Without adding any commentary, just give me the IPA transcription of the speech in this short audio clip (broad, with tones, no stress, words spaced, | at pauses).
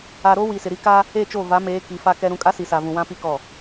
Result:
a˨ ɾo˦ wi˨sɪ˨ɾi˦ ka˦ | e˦˨t͡ʃo˦˨ va˨˦meː˨˦ ki˨˦fa˦kɛ˦ɾũ˦ kʼa˦si˨sa˨vũ˨ wã˦pi˦kɔ˦˨